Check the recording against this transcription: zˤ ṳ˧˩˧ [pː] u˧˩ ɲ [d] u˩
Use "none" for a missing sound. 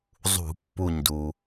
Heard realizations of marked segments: pː, d

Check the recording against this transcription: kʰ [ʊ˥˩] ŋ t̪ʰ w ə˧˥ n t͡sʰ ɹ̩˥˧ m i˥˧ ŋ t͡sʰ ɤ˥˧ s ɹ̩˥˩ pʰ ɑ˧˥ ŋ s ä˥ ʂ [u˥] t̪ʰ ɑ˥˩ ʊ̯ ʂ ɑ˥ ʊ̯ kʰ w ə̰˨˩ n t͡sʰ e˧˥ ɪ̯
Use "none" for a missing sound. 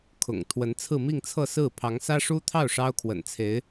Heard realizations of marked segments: ʊ̰˨˩, u˥

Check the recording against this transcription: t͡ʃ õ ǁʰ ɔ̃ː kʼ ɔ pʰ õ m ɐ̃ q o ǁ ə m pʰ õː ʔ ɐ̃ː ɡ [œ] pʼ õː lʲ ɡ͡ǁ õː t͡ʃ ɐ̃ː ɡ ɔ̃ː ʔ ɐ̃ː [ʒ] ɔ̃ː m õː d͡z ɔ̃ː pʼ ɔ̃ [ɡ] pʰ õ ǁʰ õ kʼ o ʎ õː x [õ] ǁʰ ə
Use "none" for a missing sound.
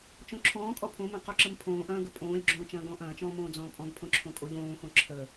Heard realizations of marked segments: ə, t͡ʃ, ɡ, õ

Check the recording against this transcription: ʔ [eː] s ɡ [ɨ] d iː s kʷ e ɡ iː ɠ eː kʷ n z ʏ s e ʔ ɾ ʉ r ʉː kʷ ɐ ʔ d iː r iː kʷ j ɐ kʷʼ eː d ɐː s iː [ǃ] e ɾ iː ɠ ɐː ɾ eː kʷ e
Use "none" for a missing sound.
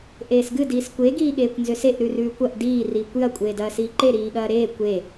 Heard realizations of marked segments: eː, ɨ, ǃ

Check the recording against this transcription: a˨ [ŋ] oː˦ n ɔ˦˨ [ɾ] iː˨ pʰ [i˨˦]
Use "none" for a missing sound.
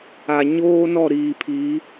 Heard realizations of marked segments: ɲ, ɾ, i˨˦

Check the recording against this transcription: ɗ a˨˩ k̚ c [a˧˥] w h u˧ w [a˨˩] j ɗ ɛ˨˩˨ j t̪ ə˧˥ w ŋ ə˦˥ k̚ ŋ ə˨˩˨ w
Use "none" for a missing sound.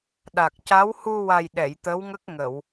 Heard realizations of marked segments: a˧˥, a˨˩

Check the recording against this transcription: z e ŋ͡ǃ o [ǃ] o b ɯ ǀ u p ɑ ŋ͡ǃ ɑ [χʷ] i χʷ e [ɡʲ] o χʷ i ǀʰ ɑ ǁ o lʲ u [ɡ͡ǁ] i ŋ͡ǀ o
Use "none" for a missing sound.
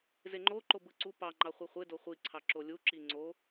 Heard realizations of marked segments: ǃ, χʷ, d, ǁ

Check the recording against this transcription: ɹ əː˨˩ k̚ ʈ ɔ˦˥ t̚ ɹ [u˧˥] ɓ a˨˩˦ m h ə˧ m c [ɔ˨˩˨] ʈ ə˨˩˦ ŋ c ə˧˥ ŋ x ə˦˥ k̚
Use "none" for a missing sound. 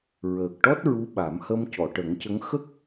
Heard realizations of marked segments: u˧˥, ɔ˨˩˨

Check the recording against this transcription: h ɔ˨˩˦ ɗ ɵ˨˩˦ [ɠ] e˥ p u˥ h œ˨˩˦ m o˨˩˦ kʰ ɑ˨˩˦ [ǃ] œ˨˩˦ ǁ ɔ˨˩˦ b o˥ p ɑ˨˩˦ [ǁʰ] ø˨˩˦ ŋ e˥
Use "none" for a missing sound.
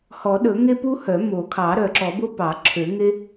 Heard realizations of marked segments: ŋ, ɾ, ǁʰ

